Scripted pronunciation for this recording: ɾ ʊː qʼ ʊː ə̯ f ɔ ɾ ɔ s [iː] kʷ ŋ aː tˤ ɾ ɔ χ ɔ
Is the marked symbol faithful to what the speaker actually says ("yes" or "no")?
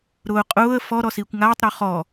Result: yes